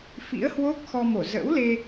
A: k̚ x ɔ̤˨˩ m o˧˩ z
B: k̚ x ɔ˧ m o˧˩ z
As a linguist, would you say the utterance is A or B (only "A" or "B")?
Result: B